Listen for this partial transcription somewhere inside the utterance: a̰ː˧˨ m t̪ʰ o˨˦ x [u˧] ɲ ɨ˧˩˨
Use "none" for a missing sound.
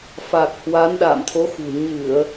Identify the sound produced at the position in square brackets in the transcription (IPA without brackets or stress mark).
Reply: ṳ˨˩